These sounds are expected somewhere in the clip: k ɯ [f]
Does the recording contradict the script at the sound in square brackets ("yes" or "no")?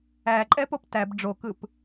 yes